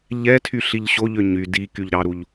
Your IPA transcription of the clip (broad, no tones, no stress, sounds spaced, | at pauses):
ʎ ɛ tʰ y ɬ i ʎ ɕ o ʎ ø ɲ y d i k y ʎ ɾ ɑ ɾ u ʎ